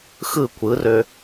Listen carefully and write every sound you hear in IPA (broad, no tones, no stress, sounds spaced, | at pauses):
x ɯ kʷ ɯ r ø